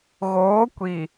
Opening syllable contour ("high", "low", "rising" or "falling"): rising